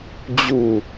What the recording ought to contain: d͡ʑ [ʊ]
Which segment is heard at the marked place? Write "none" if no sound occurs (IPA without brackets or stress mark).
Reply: u